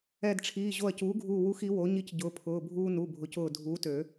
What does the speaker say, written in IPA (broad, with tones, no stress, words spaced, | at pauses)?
ɛ˧˩dʈ͡ʂʰiː˩˧˩ ʑo˧˩ɐ̯cuː˩˥ɡʱuː˧˩ wu˧x i˩˥ wo˩˥ ɲi˧cɟʊː˩˥pʰʊː˩˧˩ bʱuː˧ nu˩˧˩bʱʊ˩˥cʊː˧˩ dʱuː˩˥tø˨˩˦